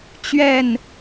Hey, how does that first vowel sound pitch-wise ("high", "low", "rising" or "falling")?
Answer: falling